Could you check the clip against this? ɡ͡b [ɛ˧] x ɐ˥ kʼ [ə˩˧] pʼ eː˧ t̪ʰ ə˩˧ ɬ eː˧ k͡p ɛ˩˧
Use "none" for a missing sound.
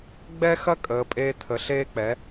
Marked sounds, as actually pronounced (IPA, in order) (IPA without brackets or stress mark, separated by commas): ɛ˥, əː˩˧